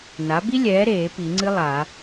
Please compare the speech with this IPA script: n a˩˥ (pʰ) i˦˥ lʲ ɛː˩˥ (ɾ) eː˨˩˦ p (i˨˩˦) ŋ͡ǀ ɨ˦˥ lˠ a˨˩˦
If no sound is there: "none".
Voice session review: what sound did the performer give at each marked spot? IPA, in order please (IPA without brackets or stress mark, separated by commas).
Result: b, ɾ, i˨˩˦